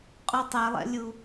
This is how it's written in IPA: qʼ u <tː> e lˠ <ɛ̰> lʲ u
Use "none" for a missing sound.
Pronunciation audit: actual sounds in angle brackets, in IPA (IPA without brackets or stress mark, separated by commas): tˤ, ɛ̰